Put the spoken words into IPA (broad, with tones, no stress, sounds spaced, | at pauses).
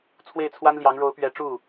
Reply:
t͡sʰ w e˥˩ ɪ̯ t͡sʰ w a˥ n l j ɑ˧˥ ŋ ɻ o˧˥ ʊ̯ p ɥ ɛ˧˥ ʈ͡ʂ u˥˩